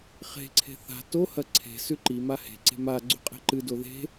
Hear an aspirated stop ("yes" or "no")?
yes